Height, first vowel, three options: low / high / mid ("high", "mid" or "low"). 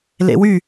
mid